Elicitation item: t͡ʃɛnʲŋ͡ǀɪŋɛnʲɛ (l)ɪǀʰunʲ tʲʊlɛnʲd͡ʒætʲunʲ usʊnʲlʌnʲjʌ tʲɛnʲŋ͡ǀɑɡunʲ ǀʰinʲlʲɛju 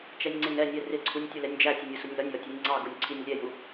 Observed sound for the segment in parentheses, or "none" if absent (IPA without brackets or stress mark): r